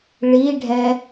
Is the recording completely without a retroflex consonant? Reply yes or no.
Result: no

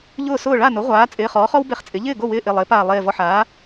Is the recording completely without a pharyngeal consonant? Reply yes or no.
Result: no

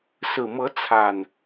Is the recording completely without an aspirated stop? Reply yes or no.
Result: no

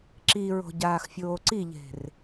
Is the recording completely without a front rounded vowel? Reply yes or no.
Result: yes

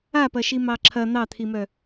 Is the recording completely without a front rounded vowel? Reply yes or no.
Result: no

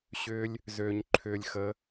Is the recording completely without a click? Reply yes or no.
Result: no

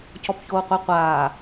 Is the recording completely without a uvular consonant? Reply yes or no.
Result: no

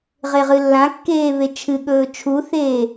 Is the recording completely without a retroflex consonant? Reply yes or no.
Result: yes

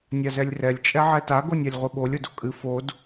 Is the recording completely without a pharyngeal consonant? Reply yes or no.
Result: no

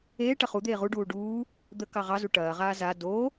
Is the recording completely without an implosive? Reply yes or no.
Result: yes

